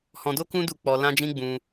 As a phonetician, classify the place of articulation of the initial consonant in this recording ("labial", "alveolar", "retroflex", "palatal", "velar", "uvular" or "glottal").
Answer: glottal